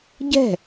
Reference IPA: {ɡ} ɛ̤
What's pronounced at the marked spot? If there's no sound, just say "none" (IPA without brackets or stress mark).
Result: ɟ